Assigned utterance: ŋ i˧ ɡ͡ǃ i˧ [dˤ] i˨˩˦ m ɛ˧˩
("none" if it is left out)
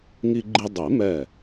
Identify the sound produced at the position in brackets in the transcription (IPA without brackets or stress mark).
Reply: dˤ